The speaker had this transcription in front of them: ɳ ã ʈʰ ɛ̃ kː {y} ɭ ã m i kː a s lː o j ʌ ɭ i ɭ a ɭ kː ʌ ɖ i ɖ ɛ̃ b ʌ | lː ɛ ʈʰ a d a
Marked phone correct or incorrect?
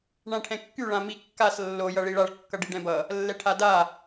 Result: correct